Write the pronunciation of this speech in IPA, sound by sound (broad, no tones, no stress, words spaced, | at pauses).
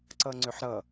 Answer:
ǀʌŋ͡ǀʏħɾʌ